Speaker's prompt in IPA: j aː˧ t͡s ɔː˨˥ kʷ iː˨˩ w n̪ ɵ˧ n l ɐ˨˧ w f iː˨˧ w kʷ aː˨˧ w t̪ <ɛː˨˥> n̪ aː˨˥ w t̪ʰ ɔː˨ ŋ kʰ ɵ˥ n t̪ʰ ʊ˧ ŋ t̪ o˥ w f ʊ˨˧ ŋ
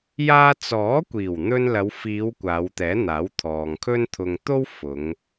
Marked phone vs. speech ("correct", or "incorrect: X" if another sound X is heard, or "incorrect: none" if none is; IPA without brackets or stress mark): correct